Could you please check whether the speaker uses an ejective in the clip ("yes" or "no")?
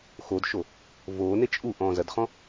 yes